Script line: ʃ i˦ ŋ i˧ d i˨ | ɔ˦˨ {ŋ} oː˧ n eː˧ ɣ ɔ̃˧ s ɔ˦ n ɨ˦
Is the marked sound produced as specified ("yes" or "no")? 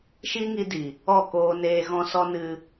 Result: no